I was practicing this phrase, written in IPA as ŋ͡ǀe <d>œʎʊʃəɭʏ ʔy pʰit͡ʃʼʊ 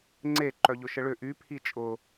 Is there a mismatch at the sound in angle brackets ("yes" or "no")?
yes